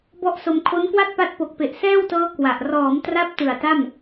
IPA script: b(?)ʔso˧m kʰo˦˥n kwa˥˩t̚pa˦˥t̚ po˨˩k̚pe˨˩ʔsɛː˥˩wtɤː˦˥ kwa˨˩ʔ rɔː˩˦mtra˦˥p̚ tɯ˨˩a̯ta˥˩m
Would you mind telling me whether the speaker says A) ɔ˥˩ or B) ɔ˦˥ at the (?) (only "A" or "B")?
A